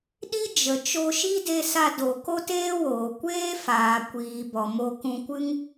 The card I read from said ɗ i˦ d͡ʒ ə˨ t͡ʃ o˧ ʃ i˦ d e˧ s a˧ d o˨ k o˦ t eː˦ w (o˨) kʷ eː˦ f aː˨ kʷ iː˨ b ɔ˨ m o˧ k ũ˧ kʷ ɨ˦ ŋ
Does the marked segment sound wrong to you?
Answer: yes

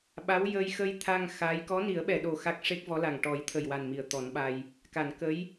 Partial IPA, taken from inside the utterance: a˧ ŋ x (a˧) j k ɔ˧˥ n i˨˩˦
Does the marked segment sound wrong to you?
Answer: yes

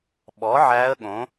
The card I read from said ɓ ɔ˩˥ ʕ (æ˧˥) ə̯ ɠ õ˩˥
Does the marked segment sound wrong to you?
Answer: no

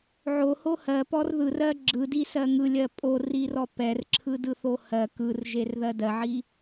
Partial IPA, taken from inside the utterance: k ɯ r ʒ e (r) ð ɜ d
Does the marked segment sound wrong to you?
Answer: no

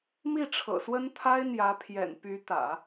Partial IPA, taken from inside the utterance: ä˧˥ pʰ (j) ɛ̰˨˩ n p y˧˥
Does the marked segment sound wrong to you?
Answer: no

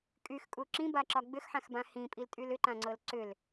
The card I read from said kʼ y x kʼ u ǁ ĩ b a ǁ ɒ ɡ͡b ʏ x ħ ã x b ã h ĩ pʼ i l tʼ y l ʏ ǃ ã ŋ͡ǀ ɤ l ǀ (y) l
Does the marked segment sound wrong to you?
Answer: yes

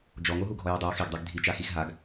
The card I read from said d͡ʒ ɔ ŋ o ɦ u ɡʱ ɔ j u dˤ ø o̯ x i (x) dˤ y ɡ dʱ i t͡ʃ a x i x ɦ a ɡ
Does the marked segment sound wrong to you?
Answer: yes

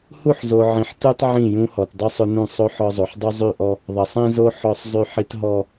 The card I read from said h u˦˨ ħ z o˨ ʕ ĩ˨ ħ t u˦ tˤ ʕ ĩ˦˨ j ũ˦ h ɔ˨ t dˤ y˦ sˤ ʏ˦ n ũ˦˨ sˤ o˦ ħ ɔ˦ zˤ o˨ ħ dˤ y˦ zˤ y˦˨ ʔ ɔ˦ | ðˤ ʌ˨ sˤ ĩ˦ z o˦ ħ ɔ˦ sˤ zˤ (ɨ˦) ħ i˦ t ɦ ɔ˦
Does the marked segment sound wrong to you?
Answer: yes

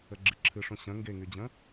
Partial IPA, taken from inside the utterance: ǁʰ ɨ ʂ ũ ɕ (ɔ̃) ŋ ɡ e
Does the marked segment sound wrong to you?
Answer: yes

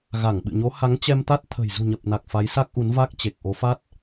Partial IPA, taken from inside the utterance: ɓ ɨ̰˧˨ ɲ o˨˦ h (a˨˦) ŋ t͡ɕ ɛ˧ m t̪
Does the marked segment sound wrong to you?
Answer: no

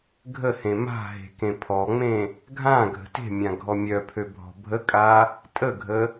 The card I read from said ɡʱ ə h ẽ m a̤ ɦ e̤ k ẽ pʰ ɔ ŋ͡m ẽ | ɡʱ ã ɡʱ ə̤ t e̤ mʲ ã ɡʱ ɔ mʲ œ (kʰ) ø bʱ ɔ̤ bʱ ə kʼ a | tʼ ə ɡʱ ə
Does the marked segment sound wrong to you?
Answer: yes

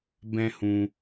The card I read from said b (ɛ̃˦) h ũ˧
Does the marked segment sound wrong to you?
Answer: no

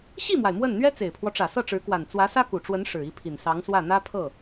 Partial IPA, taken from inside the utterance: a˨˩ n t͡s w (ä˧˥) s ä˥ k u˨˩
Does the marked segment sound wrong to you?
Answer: no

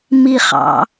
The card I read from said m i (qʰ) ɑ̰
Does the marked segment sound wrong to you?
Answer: yes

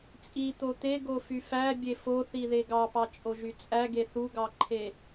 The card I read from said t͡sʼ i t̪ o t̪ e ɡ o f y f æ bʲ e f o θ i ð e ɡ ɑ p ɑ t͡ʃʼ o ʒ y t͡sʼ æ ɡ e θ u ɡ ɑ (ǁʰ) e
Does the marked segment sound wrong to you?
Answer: yes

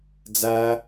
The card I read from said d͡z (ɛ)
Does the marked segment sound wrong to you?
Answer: yes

